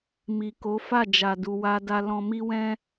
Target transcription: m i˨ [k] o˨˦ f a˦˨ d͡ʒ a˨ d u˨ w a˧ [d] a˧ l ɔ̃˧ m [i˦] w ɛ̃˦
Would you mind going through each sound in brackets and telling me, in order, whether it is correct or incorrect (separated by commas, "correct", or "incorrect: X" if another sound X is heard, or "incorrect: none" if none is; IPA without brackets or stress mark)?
correct, correct, correct